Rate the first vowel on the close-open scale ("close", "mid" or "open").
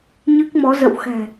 close